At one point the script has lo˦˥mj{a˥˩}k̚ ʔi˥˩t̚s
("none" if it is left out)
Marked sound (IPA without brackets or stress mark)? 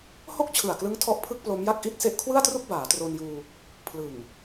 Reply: a˥˩